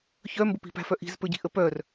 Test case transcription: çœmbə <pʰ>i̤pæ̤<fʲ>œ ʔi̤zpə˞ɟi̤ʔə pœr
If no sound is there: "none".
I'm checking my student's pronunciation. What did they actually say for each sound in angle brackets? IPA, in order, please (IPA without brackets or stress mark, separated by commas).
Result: p, f